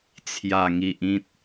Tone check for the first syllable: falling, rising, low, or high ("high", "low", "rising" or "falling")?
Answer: low